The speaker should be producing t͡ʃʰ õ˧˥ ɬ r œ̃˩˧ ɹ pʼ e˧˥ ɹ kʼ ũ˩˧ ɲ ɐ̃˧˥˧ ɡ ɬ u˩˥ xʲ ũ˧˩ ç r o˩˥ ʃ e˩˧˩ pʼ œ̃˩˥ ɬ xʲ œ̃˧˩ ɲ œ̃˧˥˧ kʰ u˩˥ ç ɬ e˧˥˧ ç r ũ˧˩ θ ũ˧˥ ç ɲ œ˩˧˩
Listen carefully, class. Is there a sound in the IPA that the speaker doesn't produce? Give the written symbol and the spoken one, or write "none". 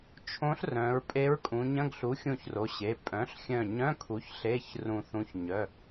ʃ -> ɕ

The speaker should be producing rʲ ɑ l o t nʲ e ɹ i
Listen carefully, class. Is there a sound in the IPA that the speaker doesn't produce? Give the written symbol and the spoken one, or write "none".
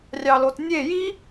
ɹ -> j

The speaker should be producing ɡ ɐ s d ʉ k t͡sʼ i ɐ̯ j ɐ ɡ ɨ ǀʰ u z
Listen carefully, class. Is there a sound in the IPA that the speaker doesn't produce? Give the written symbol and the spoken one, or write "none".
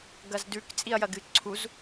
s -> z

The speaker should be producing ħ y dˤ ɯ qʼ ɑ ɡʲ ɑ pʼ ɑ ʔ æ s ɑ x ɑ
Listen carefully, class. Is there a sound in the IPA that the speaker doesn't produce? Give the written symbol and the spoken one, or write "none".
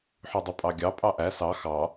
qʼ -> pʼ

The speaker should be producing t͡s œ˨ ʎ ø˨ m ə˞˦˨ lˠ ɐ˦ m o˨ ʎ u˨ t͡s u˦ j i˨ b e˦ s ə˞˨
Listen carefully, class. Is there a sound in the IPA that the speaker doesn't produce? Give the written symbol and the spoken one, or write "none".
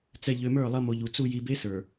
œ˨ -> ɛ˨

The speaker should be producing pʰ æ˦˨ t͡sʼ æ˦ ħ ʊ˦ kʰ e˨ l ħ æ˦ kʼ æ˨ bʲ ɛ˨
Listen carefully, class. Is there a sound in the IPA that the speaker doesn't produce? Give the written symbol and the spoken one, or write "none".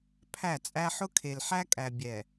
none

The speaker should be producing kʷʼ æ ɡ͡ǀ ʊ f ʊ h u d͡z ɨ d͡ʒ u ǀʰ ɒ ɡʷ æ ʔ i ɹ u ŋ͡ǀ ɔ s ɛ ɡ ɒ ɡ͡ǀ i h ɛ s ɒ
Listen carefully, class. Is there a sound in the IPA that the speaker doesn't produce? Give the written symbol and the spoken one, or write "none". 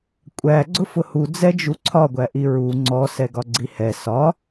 ɨ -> ɛ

